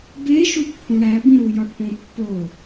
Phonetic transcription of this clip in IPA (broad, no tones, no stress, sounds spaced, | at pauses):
b e ʃ u pː ũ ɽ æ b ĩ ɾ u j ɒ ʈ p õ pː o